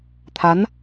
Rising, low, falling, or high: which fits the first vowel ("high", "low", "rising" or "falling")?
rising